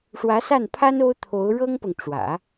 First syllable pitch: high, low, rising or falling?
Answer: rising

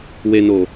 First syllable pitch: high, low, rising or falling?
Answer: low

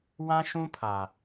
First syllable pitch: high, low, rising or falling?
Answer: high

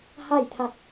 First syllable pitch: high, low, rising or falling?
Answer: falling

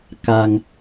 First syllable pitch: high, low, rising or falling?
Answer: low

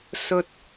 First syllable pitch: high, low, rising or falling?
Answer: low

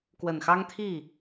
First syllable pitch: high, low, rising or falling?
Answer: low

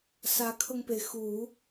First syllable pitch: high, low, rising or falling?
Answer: rising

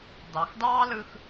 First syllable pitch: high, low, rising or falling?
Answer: low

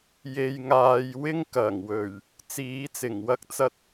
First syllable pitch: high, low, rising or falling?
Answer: low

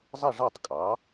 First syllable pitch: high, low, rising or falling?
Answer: falling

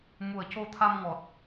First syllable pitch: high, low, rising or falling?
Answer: low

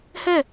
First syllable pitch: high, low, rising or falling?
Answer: falling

